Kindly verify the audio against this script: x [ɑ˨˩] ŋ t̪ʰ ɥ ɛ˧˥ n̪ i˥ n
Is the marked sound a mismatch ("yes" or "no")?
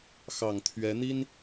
no